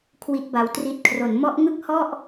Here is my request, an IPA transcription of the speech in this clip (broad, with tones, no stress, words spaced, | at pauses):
kʰwi˦˥t̚ba˧wtri˦˥t̚ kʰro˩˦nmɔ˦˥ʔŋɯ˥˩k̚hɔ˥˩ʔ